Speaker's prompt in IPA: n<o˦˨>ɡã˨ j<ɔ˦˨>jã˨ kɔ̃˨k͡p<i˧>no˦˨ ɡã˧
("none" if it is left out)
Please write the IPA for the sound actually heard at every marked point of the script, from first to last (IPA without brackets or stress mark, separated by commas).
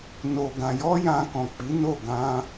o˨, ɔ˧, i˨˦